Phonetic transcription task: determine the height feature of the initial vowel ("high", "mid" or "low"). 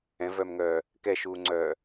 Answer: mid